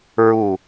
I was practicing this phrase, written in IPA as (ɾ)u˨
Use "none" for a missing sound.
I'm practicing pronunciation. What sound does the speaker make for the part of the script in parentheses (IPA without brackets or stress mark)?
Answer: ɹ